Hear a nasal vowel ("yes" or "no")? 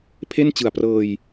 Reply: no